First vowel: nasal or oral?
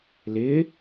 oral